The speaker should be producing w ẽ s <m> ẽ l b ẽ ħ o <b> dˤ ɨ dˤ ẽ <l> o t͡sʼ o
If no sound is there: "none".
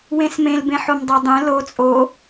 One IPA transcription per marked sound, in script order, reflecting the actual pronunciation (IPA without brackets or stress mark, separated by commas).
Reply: m, m, l